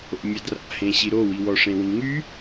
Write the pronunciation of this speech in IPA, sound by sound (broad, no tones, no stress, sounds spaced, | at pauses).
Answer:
o̰ mʲ a d r a̰ h ẽ ɕ i ɾ o w i w ɔ ʂ ẽ w ĩ ŋ y